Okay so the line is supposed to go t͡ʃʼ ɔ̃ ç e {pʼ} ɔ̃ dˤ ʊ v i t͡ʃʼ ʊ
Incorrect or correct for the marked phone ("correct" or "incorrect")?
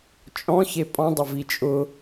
correct